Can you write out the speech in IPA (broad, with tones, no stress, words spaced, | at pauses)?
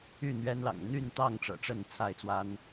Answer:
y˥˨n̪ɥɛ˦nlɑ̰˨˩ŋ n̪y˥˨nt̪ɑ˥˨ŋ ʈ͡ʂɤ̰˨˩ ʈ͡ʂə˥˨n t͡sʰa˥˨ɪ̯t͡swa˦n